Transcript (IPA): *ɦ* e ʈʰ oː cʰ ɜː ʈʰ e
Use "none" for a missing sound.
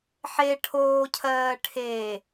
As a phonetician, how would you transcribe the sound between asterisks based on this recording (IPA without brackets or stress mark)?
ħ